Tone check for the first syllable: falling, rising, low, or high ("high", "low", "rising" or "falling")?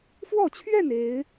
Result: falling